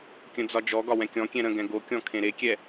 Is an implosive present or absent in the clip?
absent